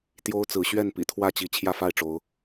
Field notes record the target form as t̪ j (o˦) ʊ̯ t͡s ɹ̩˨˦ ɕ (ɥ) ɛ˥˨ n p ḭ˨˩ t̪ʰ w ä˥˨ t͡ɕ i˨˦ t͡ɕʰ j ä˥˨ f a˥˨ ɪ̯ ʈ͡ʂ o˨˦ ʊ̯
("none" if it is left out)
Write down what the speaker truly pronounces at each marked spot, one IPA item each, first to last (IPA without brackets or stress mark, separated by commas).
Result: o˦, ɥ